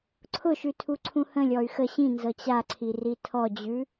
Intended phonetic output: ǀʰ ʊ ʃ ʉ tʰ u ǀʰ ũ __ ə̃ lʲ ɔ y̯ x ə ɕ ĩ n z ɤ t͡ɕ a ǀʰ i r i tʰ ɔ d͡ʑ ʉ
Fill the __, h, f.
h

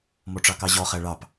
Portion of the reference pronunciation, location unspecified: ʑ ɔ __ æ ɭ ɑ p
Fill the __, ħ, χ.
χ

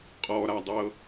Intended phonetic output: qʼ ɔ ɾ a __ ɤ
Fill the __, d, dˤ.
dˤ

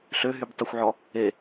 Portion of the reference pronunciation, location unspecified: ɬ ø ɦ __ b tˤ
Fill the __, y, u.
y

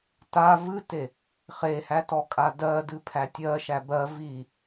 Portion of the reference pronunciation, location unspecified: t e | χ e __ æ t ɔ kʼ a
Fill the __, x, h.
h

